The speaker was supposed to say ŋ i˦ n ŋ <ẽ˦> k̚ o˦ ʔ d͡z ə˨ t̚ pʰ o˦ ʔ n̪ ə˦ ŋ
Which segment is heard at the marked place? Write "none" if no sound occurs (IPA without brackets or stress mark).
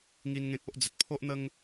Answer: ẽ˦